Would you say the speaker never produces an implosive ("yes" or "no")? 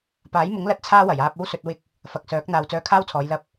yes